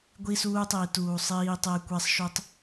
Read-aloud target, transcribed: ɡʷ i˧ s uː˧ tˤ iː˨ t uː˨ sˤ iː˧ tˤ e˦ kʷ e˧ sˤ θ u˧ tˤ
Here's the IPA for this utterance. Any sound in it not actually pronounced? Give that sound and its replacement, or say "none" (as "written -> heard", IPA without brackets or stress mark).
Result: θ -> ʃ